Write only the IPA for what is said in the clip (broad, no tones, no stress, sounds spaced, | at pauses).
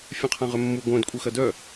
fʲ œ̃ qʰ ã ʁ ø mː u ɡʷ œ̃ d kʷʼ ə x ɐ d œ